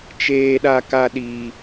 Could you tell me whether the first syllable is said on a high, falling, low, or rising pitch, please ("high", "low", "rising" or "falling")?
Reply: high